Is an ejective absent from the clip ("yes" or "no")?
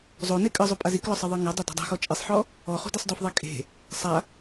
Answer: no